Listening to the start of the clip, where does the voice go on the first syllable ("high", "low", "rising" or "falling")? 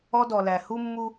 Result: high